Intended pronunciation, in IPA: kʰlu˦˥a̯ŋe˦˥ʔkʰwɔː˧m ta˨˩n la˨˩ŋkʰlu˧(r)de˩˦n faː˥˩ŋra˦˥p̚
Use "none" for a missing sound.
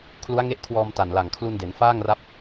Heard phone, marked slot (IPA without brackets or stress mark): n